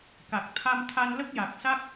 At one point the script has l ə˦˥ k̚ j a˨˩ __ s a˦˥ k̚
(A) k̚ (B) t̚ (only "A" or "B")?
A